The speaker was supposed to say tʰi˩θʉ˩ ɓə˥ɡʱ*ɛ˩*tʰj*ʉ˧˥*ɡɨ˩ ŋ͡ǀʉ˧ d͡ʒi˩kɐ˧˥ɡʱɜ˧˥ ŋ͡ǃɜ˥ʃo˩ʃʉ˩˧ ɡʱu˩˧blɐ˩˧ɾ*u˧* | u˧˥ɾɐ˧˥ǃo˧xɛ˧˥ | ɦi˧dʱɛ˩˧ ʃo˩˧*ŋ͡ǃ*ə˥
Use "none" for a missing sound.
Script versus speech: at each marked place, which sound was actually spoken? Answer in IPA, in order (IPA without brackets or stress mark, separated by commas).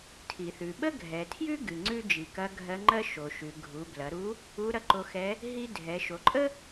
ɛ˩, ʉ˥, u˧˥, ǃʼ